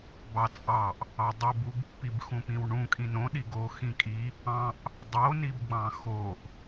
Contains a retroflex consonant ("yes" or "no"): yes